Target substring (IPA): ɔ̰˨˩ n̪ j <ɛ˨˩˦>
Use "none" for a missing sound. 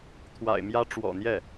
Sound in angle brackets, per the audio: ɛ˥˩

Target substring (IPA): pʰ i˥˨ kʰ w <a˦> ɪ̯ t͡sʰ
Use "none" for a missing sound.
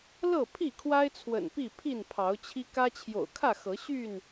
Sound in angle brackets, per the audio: a˦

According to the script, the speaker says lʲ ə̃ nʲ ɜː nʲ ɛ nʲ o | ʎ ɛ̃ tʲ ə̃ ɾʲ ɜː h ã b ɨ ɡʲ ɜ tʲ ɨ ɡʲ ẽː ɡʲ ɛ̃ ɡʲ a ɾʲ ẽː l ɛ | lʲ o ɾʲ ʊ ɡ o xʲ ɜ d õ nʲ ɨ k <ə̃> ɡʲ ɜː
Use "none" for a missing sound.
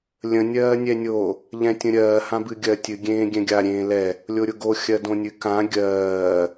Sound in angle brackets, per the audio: ã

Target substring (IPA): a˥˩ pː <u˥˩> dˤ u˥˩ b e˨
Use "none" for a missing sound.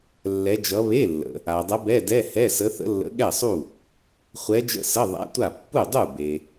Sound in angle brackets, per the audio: u˥˩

